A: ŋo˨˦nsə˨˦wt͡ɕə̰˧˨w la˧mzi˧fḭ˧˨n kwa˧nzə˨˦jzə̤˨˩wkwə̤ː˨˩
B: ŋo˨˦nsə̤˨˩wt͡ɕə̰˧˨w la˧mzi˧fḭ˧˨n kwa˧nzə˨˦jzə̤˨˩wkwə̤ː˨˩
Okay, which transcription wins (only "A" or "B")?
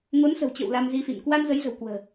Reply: B